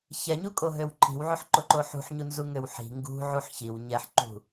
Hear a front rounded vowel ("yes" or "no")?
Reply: yes